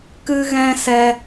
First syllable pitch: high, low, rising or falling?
high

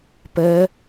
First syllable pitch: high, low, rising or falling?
rising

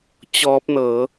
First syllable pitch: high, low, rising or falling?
rising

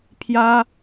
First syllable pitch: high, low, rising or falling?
high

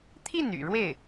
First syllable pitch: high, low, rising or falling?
falling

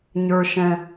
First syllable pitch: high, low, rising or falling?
high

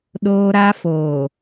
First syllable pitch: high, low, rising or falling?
high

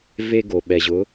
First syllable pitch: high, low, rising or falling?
high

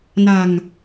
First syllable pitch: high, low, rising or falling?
low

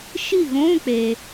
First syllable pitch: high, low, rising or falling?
falling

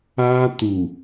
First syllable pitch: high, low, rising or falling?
high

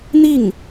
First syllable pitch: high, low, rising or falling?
falling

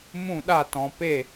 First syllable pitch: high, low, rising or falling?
falling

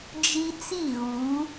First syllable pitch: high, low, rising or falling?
high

